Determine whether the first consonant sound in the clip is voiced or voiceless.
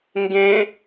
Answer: voiced